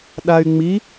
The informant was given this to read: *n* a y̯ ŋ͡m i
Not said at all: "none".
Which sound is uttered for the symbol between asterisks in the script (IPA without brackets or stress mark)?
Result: ɗ